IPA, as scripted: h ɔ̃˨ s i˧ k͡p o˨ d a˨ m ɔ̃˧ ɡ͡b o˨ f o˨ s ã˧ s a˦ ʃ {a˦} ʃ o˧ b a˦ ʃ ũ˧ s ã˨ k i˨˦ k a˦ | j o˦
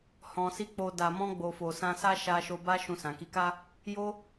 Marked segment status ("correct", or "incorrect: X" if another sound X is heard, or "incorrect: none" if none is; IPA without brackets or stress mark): incorrect: a˧